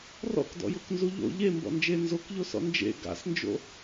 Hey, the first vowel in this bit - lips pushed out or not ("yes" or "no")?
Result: yes